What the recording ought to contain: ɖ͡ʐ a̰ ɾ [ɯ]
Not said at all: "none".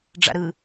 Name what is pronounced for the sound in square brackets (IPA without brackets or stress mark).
ɯ